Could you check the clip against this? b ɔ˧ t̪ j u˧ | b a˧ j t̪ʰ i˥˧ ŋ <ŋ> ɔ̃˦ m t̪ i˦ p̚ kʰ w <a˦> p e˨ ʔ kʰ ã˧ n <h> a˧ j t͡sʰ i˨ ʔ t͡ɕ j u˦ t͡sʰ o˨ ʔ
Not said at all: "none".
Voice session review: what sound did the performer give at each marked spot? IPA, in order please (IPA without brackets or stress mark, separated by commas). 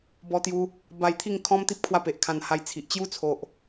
kʰ, a˧, h